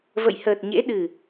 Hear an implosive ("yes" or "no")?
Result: yes